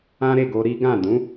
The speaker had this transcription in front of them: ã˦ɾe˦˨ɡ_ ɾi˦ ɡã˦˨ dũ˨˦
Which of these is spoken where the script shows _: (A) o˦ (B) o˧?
B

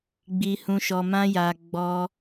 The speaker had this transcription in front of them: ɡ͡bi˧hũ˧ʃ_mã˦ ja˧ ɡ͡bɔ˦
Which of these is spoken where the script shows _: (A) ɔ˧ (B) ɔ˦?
A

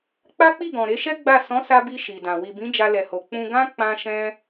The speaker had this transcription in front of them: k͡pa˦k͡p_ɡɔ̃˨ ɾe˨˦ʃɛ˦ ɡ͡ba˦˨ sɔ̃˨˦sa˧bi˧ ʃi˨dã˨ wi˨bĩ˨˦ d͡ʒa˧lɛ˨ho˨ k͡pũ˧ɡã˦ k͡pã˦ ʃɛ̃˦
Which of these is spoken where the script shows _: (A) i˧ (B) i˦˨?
B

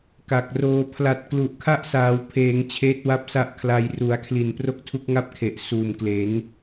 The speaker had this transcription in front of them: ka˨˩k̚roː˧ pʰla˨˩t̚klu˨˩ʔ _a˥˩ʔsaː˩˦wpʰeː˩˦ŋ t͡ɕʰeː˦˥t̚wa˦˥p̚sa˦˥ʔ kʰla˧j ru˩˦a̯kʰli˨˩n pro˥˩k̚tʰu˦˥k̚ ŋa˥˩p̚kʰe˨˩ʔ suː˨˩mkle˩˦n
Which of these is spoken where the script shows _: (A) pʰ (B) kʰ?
B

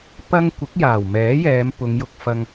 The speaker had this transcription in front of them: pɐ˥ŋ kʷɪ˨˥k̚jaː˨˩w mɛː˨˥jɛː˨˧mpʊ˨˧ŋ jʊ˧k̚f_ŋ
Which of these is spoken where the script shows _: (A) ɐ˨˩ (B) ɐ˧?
B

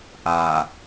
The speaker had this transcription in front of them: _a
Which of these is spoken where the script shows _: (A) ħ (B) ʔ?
B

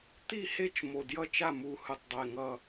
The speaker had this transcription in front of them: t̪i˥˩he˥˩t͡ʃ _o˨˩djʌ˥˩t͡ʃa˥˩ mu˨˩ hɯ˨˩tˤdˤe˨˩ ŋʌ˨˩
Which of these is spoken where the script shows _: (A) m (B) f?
A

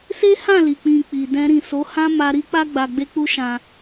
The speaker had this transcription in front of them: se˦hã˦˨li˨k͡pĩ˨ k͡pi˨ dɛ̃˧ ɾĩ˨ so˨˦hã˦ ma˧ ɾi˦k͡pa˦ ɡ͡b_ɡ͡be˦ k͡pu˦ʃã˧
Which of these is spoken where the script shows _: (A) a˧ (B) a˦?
A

